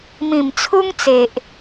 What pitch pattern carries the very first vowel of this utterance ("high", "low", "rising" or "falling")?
low